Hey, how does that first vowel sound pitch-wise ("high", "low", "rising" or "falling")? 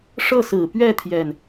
falling